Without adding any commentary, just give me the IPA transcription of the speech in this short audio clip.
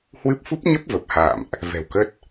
hwɨ˦˥p̚ fu˦˥p̚ɲə˦˥p̚ və˨˩p̚ha̰ː˧˨mʔ | vɛ̤˨˩wkə˦˥t̚

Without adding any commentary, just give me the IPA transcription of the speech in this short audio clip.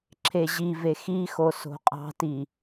ǁʰeʑive xixo so̤qʼɑ̤ti

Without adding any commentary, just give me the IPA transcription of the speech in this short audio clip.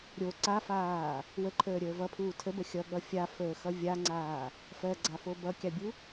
ɾʲo ǀafaː | wəǃʰəːɾʲəː vʌpʰuː tʰəbə xʲʌɠʌ fʲafəːxʌ vʲaŋ͡ǀaː | fɜɡ͡ǀafo bʌkʲabʲu

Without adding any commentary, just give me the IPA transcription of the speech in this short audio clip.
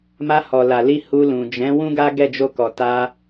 ma˧hɔ˨la˨ li˧ hu˧lũ˨ d͡ʒɛ̃˨˦ wũ˦ɡa˦ ɡɛ˦˨d͡ʒo˧kɔ˨ ta˧

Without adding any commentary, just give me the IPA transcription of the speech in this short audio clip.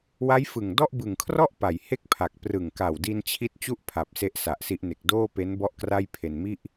wa˦˥jfɯ˨˩ŋ dɔ˥˩ʔ bɯ˨˩ŋkʰrɔ˥˩ʔ pa˨˩j he˥˩k̚pʰa˨˩k̚ prɯ˨˩ŋka˨˩wdi˧n t͡ɕʰi˥˩t̚ t͡ɕu˥˩ʔpʰa˨˩p̚ se˦˥ʔsa˨˩ʔsi˦˥ʔne˨˩k̚ doː˥˩pe˦˥n bɔ˥˩ʔkra˥˩j pʰe˧nmi˥˩ʔ

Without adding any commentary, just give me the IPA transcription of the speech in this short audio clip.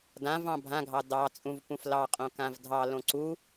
dãv ɑ̃bʱãɡʱɑ dɑ t͡sʼũvpũflɑ qʼõkãvdʱɑ lõǀu

